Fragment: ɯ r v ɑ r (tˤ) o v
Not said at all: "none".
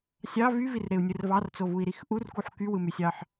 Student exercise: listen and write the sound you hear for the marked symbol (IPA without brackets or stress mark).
t͡s